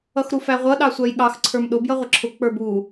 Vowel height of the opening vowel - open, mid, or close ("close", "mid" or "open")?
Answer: mid